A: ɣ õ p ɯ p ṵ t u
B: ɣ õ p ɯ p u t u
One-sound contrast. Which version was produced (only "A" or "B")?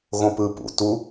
A